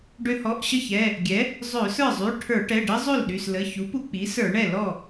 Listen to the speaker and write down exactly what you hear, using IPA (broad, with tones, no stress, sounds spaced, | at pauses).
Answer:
ɖ ø˧ h ɔ˩˧˩ ʔ ɕ ə˥˩ ç ɛ˩˧˩ | ɡʲ ɛ˩˥ | zˤ ø˧˩˧ s ə˞˥˩ zˤ y˩˧˩ ʈʰ ə˞˧˩˧ ʈ ɛ˩˧˩ ɖ ə˦˥ zˤ ø˥˩ l ɗ y˩˧˩ s l ə˩˧˩ ç u˩˥ p u˧ k͡p i˩˥ s ə˞˧˩˧ ɳ ɛ˥˩ l ɔ˥˩